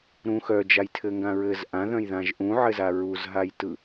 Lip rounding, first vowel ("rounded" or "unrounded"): rounded